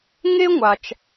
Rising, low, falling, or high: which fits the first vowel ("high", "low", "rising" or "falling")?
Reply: high